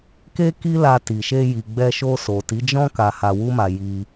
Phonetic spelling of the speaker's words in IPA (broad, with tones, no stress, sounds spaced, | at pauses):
k e˦ k i˦ l a˧ t i˨ ʃ e˧ j i˨ ɡ͡b ɛ˧ ʃ o˧ s o˨ t i˨˦ d͡ʒ ɔ̃˦ k a˧ h a˧ w u˦ m a˧ j i˧